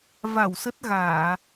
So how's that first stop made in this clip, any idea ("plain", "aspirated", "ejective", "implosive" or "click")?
plain